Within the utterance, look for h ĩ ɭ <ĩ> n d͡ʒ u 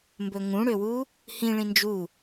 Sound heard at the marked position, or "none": ĩ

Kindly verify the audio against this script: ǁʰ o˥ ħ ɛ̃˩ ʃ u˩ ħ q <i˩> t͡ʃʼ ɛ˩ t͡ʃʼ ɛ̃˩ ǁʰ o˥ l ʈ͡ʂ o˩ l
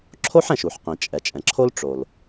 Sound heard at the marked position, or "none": ĩ˩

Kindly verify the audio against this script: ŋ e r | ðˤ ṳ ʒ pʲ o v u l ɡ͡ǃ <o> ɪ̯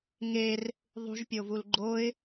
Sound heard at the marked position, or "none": o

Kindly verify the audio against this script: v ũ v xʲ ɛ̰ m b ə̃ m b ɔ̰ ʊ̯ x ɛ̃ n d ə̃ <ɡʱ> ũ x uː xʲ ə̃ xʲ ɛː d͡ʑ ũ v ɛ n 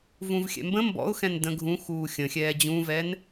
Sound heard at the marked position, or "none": ɡʱ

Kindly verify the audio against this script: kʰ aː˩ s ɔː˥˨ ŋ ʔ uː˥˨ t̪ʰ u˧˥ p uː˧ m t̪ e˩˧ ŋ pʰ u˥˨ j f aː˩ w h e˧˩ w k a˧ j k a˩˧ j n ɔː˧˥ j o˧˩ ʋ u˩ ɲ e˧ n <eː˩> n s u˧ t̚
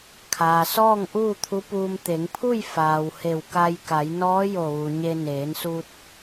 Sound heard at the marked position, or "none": eː˩˧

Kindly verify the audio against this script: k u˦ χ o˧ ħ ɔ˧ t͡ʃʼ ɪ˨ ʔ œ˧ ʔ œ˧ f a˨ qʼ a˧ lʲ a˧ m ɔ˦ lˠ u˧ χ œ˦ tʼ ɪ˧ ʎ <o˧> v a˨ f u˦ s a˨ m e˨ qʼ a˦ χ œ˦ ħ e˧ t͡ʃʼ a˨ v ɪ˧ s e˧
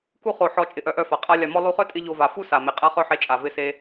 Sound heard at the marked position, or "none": o˧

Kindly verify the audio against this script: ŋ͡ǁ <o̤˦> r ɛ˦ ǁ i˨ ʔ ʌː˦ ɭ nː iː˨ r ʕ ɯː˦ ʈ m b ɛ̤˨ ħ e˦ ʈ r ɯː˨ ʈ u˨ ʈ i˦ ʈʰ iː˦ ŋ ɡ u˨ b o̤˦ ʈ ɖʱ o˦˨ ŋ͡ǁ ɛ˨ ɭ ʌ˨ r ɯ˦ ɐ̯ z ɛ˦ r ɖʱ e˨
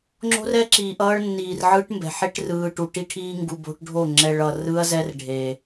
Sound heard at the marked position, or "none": o̤˦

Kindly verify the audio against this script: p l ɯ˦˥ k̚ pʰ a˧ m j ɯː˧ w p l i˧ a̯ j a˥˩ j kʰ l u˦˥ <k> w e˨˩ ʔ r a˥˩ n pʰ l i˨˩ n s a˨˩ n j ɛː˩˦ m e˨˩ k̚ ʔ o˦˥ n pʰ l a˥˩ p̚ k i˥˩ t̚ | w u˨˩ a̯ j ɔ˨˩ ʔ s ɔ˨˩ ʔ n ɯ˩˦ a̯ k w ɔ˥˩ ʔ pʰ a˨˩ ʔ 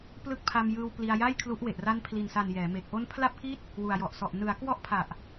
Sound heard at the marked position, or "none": ʔ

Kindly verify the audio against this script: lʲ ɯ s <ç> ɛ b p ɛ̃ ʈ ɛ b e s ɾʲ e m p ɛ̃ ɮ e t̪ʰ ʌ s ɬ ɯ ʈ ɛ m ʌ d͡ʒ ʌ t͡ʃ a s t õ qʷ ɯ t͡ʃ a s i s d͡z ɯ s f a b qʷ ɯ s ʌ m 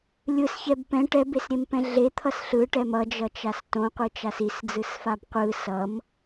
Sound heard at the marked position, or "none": ç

